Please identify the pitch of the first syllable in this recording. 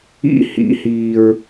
high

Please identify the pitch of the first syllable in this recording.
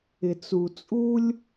low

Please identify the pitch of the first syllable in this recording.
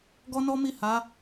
high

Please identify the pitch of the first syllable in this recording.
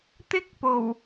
high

